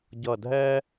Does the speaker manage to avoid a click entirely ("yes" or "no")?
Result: yes